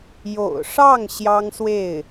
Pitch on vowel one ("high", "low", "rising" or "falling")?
low